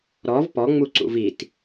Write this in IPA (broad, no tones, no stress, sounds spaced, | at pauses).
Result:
ɾ ɔ v p ɔ ŋ͡m u ǀ ṵ v i t